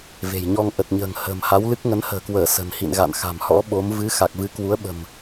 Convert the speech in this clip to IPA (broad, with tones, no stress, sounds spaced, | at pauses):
v e̤˨˩ j ɲ ɔ˧ ŋ ʔ ə˨˩ t̚ ɲ ə̤ː˨˩ ŋ h ə̤ː˨˩ m h a˨˦ w l ɨ˦˥ k̚ ŋ ə˨˦ n h ə̤ː˨˩ k w əː˧˩ s ə̤˨˩ n h ḭ˧˨ n ɣ a̰˧˨ n x a̤˨˩ m h ɔ̰˧˥ ɓ o˨˦ m v ɨ˨˦ x a˨˩ k̚ v ɨ˨˦ k w u˨˦ ə̯ ɓ ə̤˨˩ m